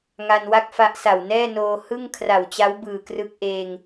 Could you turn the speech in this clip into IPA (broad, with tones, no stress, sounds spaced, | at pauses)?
ŋ a˧ n w a˥˩ k̚ f a˦˥ ʔ s a˨˩ w n ɛː˥˩ n oː˧ h ɯ˥˩ ŋ kʰ r a˨˩ w t͡ɕ a˦˥ w b ɯː˨˩ k r ɯ˦˥ k̚ ʔ eː˧ ŋ